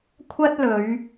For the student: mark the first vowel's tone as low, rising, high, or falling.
high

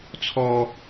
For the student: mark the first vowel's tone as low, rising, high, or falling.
high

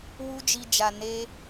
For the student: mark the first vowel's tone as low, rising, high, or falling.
high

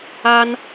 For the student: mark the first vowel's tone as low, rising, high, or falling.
high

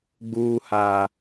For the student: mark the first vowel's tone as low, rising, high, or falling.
low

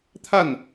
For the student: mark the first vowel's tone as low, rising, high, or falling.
falling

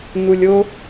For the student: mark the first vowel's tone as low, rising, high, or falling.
low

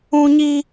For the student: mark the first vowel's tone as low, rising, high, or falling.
high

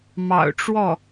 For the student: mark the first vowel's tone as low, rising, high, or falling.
low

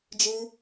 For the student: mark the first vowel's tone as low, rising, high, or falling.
high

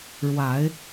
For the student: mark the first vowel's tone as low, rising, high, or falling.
rising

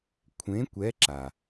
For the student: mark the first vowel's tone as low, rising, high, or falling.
rising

